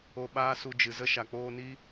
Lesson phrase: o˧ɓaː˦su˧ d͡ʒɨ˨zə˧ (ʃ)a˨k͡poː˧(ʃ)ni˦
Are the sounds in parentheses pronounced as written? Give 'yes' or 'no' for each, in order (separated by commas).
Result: yes, no